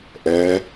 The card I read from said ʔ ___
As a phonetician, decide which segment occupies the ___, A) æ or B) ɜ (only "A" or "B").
B